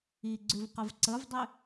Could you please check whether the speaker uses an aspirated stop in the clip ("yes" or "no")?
no